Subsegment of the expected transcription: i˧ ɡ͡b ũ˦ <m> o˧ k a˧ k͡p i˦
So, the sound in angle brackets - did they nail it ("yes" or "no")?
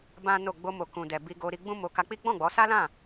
yes